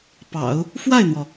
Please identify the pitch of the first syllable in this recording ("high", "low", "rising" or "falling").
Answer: low